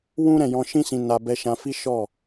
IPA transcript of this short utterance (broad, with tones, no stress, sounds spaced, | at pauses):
w ũ˦ ɾ ɛ̃˦˨ j ɔ̃˧ ʃ ĩ˦ s ĩ˧ n a˧ b ɛ˧ ʃ ã˧ f i˦ ʃ ɔ˦˨